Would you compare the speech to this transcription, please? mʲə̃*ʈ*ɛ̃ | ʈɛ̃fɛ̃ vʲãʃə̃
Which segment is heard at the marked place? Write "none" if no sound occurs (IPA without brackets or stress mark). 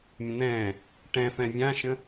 n̪